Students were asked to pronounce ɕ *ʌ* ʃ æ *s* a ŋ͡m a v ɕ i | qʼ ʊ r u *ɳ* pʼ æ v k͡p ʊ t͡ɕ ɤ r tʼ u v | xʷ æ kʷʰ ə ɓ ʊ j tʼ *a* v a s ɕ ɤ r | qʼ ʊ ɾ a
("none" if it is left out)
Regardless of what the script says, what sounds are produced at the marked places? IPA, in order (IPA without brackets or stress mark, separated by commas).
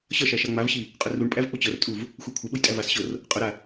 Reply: ʌ, ʃ, ɳ, æ